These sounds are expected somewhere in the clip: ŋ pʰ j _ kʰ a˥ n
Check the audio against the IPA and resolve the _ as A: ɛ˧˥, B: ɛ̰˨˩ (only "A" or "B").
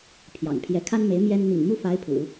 A